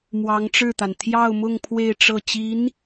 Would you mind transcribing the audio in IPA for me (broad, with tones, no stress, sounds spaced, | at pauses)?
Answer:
m w ɑ˧˥ ŋ ʈ͡ʂ ɻ̩˥˩ t̪ a˩ n t̪ʰ j ɑ˥˧ ʊ̯ m ʊ˥˧ ŋ pʰ w e˥˧ ɪ̯ ʈ͡ʂ ɤ˥˩ t͡ɕ i˧˥ n